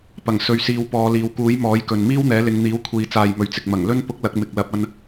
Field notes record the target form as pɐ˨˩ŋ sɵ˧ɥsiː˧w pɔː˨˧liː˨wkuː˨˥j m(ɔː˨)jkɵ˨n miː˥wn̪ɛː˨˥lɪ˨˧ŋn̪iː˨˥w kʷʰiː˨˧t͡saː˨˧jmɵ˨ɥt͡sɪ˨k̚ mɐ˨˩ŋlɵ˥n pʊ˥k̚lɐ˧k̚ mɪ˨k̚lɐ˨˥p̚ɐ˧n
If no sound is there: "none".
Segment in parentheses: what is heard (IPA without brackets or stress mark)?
ɔː˨˥